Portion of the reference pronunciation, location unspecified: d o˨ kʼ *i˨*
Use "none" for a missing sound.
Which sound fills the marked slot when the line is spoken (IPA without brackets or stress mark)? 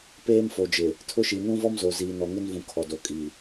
i˨